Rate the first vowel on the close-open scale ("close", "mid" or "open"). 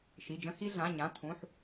close